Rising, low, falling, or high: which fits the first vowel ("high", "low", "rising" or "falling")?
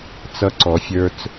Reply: high